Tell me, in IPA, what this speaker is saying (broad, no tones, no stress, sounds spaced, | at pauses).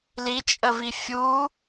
l i t͡ʃʼ ə v i fʲ u